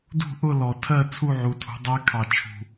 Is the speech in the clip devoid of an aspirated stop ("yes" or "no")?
no